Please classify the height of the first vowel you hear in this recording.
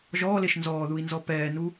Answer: mid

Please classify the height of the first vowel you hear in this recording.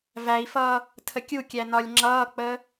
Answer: low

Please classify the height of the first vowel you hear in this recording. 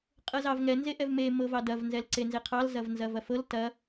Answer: mid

